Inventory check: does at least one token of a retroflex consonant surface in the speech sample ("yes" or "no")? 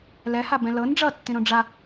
yes